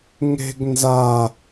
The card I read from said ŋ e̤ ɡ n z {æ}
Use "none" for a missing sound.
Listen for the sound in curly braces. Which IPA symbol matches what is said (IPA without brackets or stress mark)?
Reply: a